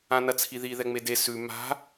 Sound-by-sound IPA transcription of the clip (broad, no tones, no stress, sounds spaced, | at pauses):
ã n ɐ t͡sʰ i ð i ð ɛ ŋ͡m e d e s ʉ m a̤